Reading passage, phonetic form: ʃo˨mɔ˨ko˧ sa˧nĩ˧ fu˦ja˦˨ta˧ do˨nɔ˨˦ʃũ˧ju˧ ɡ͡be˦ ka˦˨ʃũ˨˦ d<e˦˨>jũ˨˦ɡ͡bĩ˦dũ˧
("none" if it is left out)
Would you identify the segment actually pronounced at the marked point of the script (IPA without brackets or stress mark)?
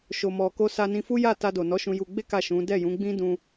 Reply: ɛ˦˨